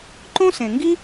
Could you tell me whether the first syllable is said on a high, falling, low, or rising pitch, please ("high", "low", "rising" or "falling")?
high